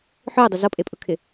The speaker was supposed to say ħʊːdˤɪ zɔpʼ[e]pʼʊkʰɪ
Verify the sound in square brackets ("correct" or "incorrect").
correct